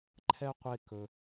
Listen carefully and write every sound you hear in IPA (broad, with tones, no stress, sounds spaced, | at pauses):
ǃʰ ɛ˥ qʷ e˦ k ɵ˨